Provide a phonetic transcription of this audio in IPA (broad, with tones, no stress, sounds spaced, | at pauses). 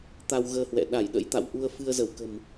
t̪ a˧ w ɣ əː˧ h w ɛ̰˧˨ ɗ a˧˩ j ɗ ə̰˧˥ j t̪ a̰˧˨ w ʔ u˧ ə̯ f ɨ˧ ə̯ z ə˧˩ w k ə̤˨˩ m